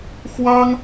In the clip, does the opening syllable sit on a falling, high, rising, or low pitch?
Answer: high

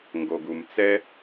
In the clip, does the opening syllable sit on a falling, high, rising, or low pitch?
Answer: low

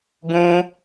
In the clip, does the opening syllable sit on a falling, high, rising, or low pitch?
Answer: high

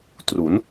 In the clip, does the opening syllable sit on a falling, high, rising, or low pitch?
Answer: rising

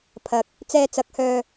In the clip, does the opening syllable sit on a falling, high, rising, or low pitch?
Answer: low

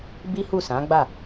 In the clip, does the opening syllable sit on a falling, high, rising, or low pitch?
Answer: high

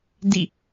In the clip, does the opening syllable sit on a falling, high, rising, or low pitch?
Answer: falling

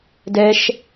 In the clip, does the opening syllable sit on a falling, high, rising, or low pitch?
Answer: high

